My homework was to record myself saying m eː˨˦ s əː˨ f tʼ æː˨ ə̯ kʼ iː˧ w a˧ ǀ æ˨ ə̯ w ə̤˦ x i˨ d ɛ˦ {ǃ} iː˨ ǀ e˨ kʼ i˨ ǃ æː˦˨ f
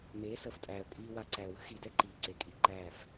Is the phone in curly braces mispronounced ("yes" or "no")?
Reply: no